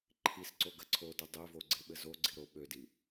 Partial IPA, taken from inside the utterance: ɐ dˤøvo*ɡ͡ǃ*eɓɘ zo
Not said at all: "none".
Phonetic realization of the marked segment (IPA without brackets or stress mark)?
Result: ɡ͡ǀ